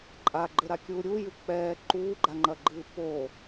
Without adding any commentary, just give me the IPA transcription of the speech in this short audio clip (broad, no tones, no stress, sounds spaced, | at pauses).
ǃʼ a ɡ͡ǃ ɘ ɾ a kʲ uː ɾʲ u j ɨ k͡p ɛː ǃ uː ɡ͡ǃ a ŋ͡ǃ ɐ ɡ͡ǃ ɨː p o